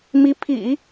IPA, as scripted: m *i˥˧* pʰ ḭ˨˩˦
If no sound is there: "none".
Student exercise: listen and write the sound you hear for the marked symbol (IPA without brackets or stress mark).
i˧˥